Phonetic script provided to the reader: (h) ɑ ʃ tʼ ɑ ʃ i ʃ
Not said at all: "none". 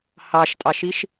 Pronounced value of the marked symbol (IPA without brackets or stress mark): h